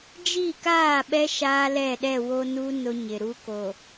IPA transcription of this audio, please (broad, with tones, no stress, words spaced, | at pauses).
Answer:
d͡ʒiː˦˨ kaː˦˨ɓɛ˦ ʃaː˦lɛ˦˨ɗɛ˦˨wo˦ nu˦ nʊ˦ɲɪ˨ɾu˦ ko˨